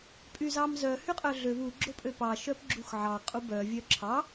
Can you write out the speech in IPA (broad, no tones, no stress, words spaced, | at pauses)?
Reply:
pʼyzɑmzœ hyqʼœɮøv u ɡ͡ǁopʼøpɑ ʃœpɡ͡ǁuxʕɑ qʼubœ vʲœǁʰɑ